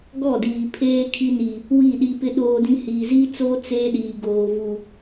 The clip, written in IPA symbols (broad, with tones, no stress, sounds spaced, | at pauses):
ɡ ɔ˦˨ d iː˨ pʰ eː˦ kʰ i˦ n iː˨ | w i˦˨ ɗ i˦ p ɪ˦ ɗ oː˦ d ĩ˦ h iː˨ z iː˦ t͡s oː˦ t͡s eː˦ ɗ iː˨ ɡ oː˨ v u˨